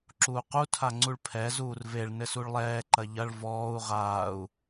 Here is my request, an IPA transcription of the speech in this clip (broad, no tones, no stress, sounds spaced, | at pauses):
ǁ uː q u tʰ a ŋ͡ǀ u ɭ pʰ ɛ z uː r v e ɭ n ɘ s u ɭ lˠ ɛː ǃ ɐ ʎ ɐ ɭ v ɔː u̯ ʁ aː u̯